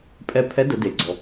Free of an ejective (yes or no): no